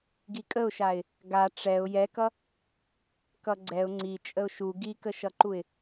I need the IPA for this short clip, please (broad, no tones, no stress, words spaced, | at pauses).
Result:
ɡikʼəʊ̯ʃaɪ̯ | ɡa ʈ͡ʂɛʊ̯ jɛkʌ | kʌɡ͡ǀɛʊ̯ ŋ͡ǀi t͡ʃʼəʊ̯ʃu ɡikəʃʌǃuɪ̯